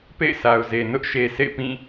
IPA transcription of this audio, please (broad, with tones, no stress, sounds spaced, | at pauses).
p ḛ˦˨ ɪ̯ sʰ a˨ ʊ̯ z e˨ n ʊ˦ ʔ ʃ e˨ s ḛ˦˨ ɪ̯ p ĩ˦˨